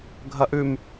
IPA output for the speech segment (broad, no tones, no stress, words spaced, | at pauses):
ɡʱɐʔʉm